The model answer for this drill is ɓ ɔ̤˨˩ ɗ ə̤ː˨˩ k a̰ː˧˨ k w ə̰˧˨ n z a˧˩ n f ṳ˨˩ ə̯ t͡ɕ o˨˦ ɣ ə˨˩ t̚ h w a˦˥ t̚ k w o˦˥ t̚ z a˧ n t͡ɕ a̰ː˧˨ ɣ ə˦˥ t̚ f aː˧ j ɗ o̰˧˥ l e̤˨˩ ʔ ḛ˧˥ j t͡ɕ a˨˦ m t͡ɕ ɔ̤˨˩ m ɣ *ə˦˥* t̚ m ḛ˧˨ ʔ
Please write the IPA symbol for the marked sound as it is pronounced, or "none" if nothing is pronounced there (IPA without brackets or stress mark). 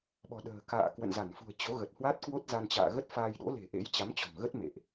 ə˦˥